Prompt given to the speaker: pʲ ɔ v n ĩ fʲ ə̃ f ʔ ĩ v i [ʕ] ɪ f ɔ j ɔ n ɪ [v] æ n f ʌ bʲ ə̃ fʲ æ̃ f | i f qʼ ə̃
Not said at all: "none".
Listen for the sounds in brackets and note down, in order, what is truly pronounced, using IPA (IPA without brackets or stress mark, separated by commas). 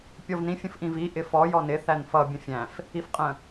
ʔ, θ